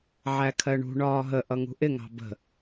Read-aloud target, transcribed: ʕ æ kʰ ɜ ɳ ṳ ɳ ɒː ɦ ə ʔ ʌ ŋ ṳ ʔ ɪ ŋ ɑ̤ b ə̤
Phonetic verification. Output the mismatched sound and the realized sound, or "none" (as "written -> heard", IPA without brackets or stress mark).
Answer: none